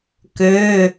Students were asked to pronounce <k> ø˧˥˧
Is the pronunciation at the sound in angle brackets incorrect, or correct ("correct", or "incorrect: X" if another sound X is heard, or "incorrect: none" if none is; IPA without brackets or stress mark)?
correct